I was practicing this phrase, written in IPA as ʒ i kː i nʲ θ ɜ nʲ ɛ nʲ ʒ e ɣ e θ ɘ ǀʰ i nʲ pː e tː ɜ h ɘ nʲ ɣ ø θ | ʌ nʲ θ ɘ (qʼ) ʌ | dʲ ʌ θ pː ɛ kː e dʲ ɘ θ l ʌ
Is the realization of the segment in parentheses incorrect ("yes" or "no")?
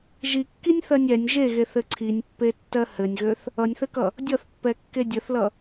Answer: yes